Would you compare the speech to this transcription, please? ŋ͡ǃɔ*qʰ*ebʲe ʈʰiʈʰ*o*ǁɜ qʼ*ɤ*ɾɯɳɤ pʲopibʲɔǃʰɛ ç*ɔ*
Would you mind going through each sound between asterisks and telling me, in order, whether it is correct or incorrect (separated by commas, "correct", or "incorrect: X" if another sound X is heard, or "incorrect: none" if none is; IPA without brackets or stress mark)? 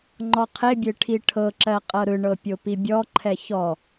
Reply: correct, incorrect: ɤ, correct, correct